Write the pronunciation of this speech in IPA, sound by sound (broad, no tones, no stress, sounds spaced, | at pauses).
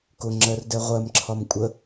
k ʊ ŋ͡ǁ ɜ r d ɛ ʁʷ ɜ m ǁʰ ɒ m kʷʼ ə